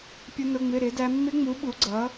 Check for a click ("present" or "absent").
present